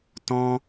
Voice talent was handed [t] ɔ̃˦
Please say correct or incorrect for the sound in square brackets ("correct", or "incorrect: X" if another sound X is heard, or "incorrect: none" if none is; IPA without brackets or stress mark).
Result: correct